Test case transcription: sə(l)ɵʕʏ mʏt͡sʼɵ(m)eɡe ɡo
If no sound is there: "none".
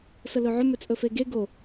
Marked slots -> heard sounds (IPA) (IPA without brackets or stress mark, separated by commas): l, f